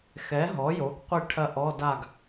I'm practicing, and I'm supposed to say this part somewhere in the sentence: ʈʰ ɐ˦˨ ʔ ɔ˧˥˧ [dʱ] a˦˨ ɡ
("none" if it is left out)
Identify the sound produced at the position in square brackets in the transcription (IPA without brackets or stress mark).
d